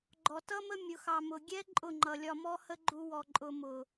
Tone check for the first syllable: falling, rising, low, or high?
low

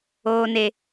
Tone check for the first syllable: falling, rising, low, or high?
high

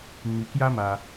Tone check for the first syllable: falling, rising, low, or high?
low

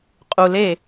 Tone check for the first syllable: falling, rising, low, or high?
low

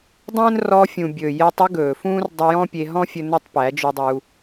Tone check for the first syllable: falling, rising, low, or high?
high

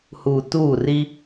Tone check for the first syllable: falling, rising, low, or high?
low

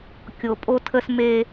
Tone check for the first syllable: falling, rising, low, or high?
low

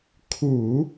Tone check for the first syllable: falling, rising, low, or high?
low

